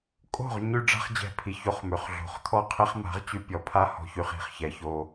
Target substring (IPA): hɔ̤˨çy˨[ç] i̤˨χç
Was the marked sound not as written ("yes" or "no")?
yes